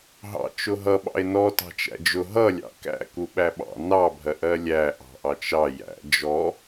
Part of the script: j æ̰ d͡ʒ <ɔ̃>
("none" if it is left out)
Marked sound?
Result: ɔ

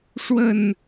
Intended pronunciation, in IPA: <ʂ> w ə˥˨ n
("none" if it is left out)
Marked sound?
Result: ʂ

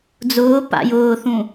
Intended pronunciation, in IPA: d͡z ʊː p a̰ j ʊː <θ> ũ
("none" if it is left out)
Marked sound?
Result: θ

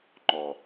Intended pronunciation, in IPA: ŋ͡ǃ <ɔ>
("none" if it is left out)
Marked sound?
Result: ɔ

